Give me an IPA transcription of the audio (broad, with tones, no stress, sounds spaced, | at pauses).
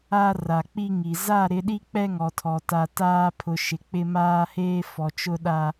a˦ r a˨ k͡p i˦ ŋ i˨ z a˦˨ ɾ ɪ˨˦ ɗ i˦ k͡p ɛ˦ ŋ ɔ˨ tʰ ɔ˨ t a˨ t aː˦ pʰ ʊ˨ ʃ ɪ˨ k͡p ɪ˦ m aː˦ h eː˦ f ɔ˨ t͡ʃ ʊ˦ ɗ a˦